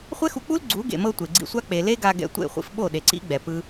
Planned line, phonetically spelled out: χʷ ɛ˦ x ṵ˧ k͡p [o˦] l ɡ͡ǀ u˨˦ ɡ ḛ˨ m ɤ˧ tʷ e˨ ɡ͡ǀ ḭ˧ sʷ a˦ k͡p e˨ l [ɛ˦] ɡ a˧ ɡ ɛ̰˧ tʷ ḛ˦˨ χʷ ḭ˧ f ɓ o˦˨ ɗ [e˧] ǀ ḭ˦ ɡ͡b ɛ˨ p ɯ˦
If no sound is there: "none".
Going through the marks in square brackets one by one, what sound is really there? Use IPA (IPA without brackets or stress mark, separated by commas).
u˦, e˦, e˨